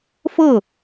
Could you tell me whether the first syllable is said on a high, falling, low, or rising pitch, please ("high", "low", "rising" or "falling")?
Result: falling